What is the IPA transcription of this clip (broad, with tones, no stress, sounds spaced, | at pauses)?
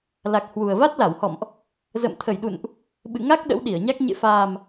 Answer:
l a˨˩ k̚ h w u˨˩ ə̯ v a˦˥ t̚ l a˧˩ w h ɔ̰˧˨ m ʔ | z ə̰˧˨ m t̪ʰ ə˧˩ j ɗ ṵ˧˨ n ʔ | ɓ ɨ̰˧˨ ŋ a˦˥ k̚ ɗ ə̰˧˥ w ɗ i˧˩ ə̯ ɲ a˦˥ k̚ ɲ ḛ˧˨ f aː˨˩ m